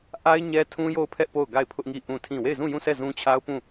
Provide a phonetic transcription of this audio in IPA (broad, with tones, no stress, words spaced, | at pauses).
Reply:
ʔa˦ɪ̯ ɲɛ˦tʰũ˦jo˦˨ʊ̯pʰɛ˦ʔ po˦˨ʊ̯ɡa˦˨ɪ̯pʰʊ˦ʔŋi˦˨ ʔũ˦˨tʰĩ˦˨ we˦˨ɪ̯zũ˦˨jũ˦˨sʰɛ˦˨ zũ˦t͡ɕʰa˦ʊ̯pũ˦˨